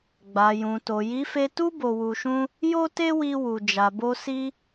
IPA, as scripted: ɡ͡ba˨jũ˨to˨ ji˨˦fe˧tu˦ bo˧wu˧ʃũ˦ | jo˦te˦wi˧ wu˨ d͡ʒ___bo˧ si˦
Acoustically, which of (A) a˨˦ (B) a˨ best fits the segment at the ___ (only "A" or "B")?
B